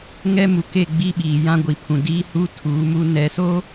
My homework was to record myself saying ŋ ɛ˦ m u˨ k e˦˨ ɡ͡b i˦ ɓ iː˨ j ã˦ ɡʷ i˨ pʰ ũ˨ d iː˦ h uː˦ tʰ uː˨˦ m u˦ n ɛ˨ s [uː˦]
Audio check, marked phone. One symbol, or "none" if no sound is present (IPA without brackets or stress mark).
oː˦